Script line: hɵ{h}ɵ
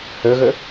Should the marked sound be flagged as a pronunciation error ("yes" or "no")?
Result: yes